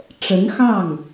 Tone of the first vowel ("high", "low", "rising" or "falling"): rising